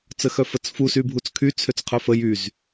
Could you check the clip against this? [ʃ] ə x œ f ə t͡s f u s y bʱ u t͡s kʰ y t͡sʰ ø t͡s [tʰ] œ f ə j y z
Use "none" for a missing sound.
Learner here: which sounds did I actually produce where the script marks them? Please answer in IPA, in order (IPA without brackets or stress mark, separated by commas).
t͡s, qʰ